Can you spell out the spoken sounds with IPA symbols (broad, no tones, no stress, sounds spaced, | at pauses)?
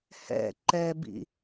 h ɛ̰ ǃ ɛ b ḭ